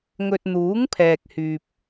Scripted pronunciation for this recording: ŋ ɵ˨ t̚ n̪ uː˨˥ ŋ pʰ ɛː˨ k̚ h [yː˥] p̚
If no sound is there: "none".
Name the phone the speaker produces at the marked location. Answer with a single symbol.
yː˨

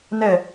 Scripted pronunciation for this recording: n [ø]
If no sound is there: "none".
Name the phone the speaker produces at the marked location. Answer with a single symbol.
ɛ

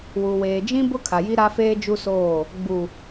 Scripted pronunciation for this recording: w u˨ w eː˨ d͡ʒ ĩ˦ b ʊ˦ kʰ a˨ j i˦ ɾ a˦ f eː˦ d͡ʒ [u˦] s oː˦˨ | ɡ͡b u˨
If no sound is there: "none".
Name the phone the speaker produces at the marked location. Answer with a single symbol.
u˦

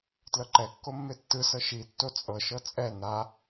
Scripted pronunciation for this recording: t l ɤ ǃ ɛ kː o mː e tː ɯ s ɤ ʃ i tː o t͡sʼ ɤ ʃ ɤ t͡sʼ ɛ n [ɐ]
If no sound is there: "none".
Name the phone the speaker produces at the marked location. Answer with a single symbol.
a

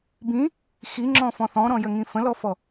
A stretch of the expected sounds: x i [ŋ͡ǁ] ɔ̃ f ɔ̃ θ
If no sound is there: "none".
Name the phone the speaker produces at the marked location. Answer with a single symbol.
ŋ͡ǁ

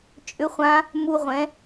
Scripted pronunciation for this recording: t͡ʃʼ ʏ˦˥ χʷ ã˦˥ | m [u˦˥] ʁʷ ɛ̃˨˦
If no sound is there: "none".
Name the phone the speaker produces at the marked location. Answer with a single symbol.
u˦˥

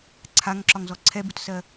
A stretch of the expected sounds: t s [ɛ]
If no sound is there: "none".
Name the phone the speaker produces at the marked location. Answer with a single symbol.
ɜ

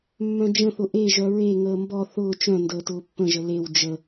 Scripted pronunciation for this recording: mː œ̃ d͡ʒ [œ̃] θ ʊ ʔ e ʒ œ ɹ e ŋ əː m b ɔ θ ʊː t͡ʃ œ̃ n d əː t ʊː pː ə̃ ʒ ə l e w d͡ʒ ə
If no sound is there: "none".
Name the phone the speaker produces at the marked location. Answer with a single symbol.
ə̃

